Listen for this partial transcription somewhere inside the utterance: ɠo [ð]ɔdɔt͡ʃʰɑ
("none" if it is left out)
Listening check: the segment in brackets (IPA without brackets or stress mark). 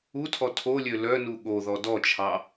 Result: ð